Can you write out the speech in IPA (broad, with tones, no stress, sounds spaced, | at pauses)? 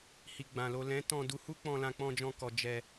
h i˨ ɡ͡b ã˨ l o˨ l ɛ̃˨˦ t ɔ̃˧ d u˧ h u˦ k͡p ɔ̃˧ l ã˧ k͡p ɔ̃˧ d͡ʒ ɔ̃˧ k ɔ˨ d͡ʒ ɛ˧